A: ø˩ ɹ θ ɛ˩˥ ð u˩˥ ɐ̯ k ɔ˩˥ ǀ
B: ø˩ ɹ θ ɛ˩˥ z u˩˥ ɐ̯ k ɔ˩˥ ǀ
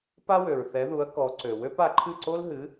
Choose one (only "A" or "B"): A